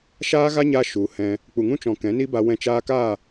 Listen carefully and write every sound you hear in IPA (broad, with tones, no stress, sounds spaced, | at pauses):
ʃ aː˦ ɣ a˦ ɲ a˧ ʃ u˨ h ɛ̃˧ | k͡p u˨ ŋ ũ˦ t͡ʃ ɔ̃˨ k ɛ̃˨˦ n i˦ b a˧ w ɛ̃˧ t͡ʃ aː˧ k aː˦˨